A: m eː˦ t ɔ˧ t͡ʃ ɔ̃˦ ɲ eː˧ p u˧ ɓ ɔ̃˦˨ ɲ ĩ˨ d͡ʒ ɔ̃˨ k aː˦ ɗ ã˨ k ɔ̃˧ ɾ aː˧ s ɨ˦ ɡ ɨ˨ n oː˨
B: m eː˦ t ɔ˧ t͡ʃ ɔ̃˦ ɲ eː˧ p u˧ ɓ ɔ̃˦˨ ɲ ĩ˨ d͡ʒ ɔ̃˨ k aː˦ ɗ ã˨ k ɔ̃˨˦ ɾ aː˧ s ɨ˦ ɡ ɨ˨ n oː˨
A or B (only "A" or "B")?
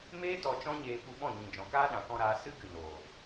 A